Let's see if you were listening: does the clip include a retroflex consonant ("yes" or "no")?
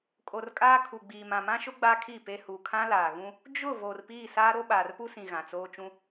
no